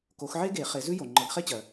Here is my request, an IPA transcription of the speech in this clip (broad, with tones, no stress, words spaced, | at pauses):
ko˨˦xʕe˥ɡe˨˩˦ χe˨˦zʉ˥ jo˩ ŋ͡ǃɤ˨˦ɡχe˥t͡ɕɜ˩